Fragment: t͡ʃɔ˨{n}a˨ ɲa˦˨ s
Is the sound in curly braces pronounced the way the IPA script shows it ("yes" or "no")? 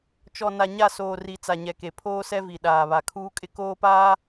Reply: yes